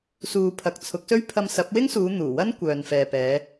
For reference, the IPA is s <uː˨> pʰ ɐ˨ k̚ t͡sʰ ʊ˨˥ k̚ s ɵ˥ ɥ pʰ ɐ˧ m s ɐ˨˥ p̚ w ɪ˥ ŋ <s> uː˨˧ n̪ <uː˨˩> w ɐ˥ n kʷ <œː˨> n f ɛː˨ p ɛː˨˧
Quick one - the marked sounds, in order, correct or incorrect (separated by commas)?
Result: correct, correct, correct, correct